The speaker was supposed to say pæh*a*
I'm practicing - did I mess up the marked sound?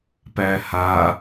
no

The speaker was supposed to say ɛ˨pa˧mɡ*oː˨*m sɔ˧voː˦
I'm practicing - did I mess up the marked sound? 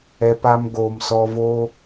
no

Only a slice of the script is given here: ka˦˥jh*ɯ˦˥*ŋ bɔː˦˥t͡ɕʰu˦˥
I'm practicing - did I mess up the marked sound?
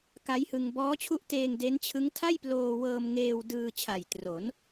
yes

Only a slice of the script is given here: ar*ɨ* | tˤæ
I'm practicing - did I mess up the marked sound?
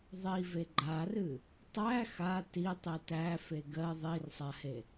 no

